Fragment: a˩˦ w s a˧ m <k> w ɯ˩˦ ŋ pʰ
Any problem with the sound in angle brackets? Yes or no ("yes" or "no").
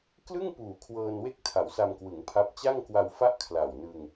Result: no